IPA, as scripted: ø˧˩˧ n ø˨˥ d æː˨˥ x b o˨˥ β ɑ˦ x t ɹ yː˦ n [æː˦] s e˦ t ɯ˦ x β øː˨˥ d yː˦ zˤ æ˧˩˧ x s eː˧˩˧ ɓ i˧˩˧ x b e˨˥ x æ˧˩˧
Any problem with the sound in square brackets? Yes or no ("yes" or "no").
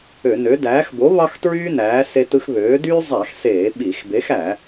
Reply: yes